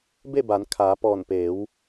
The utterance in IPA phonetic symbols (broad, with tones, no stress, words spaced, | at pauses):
be˥˨ba˩˧n kʰaː˩˧pɔː˧˩npeː˩˧w